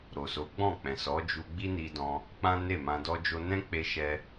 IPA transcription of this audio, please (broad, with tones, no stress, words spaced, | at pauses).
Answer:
ɾo˨so˨˦ɡ͡bɔ̃˦˨ k͡pɛ̃˨sɔ˨˦d͡ʒu˧ ɡ͡bi˦ni˧dɔ̃˧ | k͡pã˦ne˦˨mã˧ dɔ˧d͡ʒo˧nɛ̃˦k͡pe˧ ʃɛ˧